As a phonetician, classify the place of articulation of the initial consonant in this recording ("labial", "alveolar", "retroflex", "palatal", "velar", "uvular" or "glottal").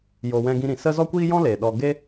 palatal